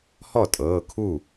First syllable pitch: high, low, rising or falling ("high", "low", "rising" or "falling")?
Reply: falling